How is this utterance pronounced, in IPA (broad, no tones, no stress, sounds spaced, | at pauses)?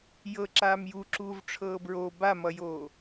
j ɤ ǁ aː m j u ǁ uː v ʈ͡ʂʰ ɤː b ɹ o b a m ʌ j oː